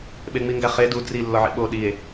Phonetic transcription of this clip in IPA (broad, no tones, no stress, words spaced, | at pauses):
ɓeŋ͡miŋɡæχe du dri lːɒʕḭɓo ɗie̯